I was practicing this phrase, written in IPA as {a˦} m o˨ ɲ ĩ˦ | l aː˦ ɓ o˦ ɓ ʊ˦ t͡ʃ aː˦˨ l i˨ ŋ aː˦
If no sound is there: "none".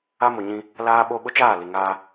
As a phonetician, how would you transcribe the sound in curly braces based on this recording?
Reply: a˦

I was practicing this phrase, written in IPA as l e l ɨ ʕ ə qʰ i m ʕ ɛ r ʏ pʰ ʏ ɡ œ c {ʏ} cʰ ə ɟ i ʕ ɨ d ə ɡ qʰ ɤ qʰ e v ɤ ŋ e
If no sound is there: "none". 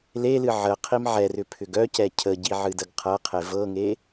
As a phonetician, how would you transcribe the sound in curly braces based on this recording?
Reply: ɛ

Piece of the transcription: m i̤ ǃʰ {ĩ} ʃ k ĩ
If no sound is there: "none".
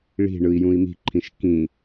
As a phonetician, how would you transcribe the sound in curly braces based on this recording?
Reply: ĩ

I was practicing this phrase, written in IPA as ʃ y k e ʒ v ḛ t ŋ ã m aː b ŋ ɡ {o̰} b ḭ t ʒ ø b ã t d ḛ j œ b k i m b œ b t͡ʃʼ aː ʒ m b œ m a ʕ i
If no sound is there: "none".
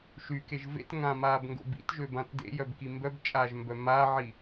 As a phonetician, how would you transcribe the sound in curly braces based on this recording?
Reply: o̰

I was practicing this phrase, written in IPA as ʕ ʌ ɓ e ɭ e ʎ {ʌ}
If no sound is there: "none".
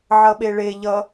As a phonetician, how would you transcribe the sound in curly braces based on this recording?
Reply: ʌ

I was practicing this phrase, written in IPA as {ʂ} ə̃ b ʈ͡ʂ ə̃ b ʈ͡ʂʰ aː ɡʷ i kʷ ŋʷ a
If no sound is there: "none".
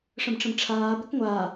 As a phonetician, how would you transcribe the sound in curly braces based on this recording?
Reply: ʂ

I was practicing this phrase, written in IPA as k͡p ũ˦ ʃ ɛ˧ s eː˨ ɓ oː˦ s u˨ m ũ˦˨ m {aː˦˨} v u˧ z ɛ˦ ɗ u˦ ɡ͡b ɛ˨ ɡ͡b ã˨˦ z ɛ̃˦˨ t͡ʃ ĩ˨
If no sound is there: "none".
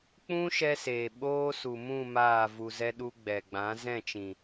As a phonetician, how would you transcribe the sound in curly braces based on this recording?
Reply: aː˦˨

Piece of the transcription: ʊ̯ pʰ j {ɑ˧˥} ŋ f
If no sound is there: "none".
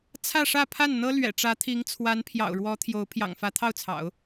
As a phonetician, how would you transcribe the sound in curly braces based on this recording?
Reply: ɑ̰˨˩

